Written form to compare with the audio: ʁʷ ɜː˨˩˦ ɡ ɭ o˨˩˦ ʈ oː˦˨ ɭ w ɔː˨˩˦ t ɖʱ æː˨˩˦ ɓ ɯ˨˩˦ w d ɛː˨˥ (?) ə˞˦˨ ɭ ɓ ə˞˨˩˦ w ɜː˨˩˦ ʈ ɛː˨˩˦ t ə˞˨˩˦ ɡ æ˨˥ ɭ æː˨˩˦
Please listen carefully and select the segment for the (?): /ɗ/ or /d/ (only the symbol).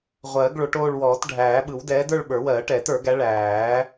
d